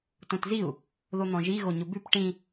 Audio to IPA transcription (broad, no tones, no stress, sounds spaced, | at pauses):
t õ t z i u̯ | ð o n̪ ɔ̃ ʒ i ɣ o ɲ ʊ b ʉ p ʈ ĩ